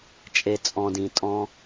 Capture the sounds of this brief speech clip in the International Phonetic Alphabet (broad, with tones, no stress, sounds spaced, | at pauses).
t͡ʃʼ e˨ t͡sʼ ɔ̃˨ d ĩ˨ tʼ ɔ̃˧